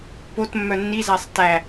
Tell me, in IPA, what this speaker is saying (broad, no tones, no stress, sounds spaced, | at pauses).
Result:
p o t mː œ nː i z æ sˤ t æ